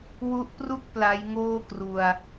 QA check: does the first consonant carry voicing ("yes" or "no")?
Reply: yes